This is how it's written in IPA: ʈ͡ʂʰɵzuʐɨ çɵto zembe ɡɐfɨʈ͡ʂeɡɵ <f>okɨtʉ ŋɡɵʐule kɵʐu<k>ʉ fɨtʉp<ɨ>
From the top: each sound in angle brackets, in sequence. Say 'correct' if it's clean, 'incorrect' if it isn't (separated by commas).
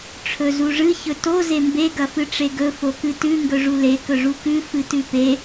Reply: correct, correct, incorrect